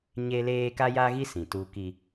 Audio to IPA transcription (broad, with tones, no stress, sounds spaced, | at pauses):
ɲ e˦ l eː˦ k a˦ j aː˦ ɣ i˦ s ĩ˨ t uː˦ k i˦